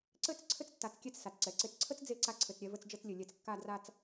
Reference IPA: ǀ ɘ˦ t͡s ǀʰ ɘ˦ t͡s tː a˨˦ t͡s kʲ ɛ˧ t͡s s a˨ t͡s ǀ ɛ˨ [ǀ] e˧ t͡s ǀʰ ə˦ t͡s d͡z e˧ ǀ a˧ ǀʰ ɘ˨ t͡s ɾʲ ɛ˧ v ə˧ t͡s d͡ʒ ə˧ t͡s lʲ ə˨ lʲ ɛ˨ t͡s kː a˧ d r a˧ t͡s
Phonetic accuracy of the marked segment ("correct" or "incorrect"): correct